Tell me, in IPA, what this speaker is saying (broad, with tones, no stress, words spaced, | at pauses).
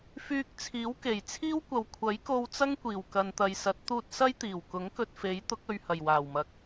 fyː˧k̚t͡sʰiː˨˥wke˨˩j t͡sʰiː˥wkʷɐ˨w kʷʰɐ˨˥jko˧wt͡sɐ˥ŋ kʷiː˨˩wkɐ˨nt̪ɐ˨jsɐ˨˥t̚ t̪uː˧t̚sɐ˥jt̪iː˨˩w kʊ˨˥ŋkɵ˧t̚fe˨˥j t̪ʊ˨˥k̚ɵ˨ɥhɐ˨˩j waː˨˩wmɐ˨k̚